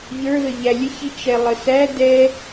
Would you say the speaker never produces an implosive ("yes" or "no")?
yes